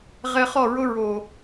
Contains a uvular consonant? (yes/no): yes